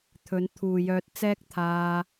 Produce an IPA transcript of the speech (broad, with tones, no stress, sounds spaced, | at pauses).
t̪ʰ ɵ˨˧ n t̪ʰ uː˨ j œː˧ t̚ t͡s ɛː˥ k̚ t̪ʰ aː˧